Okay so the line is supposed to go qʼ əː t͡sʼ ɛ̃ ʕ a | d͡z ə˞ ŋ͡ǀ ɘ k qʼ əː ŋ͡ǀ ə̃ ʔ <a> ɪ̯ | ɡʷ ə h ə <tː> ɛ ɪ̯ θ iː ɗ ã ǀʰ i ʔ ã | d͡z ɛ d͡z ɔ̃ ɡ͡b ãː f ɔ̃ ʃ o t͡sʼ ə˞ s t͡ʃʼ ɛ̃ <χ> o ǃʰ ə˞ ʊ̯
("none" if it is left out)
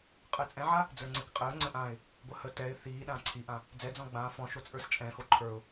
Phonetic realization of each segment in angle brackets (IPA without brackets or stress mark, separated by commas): ã, t, x